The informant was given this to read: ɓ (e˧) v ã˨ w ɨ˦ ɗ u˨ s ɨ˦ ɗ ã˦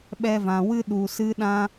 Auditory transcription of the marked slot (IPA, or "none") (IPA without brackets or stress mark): ɛ˧